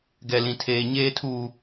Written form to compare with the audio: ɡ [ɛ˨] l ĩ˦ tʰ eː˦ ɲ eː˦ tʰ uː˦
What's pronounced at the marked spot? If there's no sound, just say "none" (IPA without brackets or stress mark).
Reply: ɛ˦